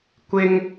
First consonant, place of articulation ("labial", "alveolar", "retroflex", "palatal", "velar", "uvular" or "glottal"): velar